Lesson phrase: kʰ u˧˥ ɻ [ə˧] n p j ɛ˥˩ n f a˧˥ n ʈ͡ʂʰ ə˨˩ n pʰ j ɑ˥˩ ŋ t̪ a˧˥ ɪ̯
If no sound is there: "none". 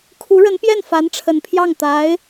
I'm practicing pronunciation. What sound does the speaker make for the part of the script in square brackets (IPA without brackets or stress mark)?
ə˧˥